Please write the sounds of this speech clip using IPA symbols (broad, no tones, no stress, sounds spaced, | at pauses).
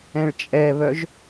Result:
ɛ̃ ɭ t͡ʃʼ ɛ β œ ʒ